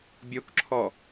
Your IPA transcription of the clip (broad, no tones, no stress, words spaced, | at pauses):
bʲokǁʰɔ